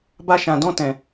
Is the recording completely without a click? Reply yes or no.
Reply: yes